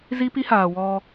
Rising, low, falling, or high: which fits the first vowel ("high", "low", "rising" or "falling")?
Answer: high